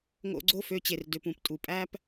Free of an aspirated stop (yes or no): yes